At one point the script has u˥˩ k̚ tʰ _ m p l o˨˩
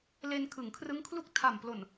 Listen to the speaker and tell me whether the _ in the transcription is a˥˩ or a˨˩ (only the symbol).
a˨˩